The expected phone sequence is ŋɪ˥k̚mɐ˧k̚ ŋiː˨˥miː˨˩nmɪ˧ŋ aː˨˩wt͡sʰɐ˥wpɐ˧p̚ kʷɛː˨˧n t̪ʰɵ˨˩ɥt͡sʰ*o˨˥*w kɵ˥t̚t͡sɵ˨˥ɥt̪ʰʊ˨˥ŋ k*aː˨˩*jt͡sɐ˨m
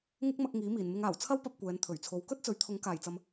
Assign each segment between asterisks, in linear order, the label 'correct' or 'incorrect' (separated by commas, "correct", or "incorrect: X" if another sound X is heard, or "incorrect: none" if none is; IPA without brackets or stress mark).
incorrect: o˨˧, correct